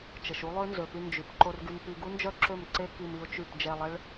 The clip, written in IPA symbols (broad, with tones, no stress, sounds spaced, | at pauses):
t͡ʃ ə˨ ʃ u˦ lˠ ø˦ n z ø˨ p y˧ n d͡ʒ y˨ p ǃ o˧ r ɡ y˧ m p i˧ ɡ u˦ n d͡ʒ œ˦ ǁ ø˦˨ m ǀ e˦ k i˧ m i˧ ʊ̯ t͡ʃ y˦˨ p d͡ʒ ɛ˧ lˠ ɛ˦ ɭ